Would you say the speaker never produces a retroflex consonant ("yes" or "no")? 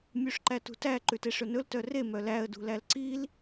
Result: no